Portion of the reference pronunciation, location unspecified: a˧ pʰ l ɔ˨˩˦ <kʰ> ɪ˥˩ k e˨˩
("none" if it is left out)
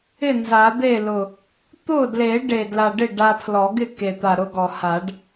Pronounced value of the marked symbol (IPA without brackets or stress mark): ɡ